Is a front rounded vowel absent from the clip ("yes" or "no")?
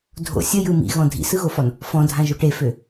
no